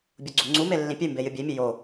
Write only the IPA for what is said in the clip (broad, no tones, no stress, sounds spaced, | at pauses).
bʲ o ɡ͡ǀ u ŋ͡ǀ u m e lː ĩ pʲ ʉ m b e j ɨ bʲ e mʲ ʉ j o